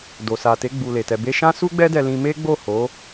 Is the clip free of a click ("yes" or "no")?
yes